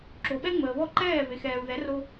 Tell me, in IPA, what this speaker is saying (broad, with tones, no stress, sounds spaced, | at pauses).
ǁ o˩ ɓ ɛ˥ ŋ͡m əː˩ β ɔ˥˩ ǃ ɛː˥˩ v e˩ x ɛː˩ u̯ ð ɛ˩˥ r o˧